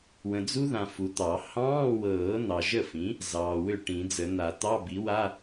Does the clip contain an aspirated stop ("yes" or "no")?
no